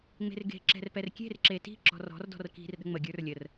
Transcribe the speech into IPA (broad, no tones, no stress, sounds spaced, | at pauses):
ŋ͡m e̤ r ɡ e̤ ǁ ɛ̤ r p ɛ r kʲ e̤ r ǁ e t i̤ ǁ ɔ̤ r ɔ̤ r d ɔ̤ r k i̤ r ɗ ə̤ ŋ͡m ə ɡʲ ə˞ r lʲ ə r